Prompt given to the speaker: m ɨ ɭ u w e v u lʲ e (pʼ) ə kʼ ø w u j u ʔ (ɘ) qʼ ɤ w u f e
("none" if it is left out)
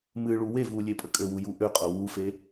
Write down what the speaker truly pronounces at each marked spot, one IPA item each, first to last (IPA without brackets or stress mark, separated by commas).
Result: pʼ, ø